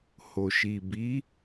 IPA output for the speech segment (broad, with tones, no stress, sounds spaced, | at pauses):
h o˨ ʃ i˨ b i˨˦